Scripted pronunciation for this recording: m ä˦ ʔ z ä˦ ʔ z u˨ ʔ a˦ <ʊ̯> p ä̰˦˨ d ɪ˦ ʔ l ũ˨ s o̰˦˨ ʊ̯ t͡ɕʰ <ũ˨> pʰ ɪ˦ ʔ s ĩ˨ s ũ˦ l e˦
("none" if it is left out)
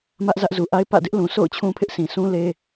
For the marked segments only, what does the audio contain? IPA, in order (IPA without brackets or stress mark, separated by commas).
ɪ̯, ũ˦